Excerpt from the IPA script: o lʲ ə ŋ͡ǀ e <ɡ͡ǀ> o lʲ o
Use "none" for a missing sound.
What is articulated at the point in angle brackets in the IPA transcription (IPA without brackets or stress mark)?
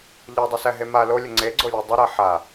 ɡ͡ǀ